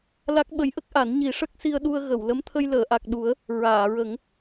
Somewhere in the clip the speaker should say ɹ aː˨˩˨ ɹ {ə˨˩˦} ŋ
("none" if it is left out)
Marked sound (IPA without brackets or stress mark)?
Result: ə˨˩˦